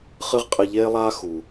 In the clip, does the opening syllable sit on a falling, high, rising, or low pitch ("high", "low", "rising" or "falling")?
high